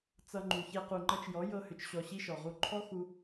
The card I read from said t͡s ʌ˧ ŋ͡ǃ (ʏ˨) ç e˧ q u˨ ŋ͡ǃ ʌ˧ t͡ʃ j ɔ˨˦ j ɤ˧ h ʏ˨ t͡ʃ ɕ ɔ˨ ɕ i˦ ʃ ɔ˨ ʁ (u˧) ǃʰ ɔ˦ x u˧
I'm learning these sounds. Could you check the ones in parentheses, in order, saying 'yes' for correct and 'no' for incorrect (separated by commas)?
no, yes